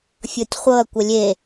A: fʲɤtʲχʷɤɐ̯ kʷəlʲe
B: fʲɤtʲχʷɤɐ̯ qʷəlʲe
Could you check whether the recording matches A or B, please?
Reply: A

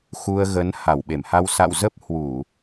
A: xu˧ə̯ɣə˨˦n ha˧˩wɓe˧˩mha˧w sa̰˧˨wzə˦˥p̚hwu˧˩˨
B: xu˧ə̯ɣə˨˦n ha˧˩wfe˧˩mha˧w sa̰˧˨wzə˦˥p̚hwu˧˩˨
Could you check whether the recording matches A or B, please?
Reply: A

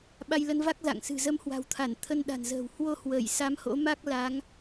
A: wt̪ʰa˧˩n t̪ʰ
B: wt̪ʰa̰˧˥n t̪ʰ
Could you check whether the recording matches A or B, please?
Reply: A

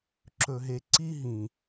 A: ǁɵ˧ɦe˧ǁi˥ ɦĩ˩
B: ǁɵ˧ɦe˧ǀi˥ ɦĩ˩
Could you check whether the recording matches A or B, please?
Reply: B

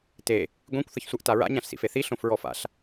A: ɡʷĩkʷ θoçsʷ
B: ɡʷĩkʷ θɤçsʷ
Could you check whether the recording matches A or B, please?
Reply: B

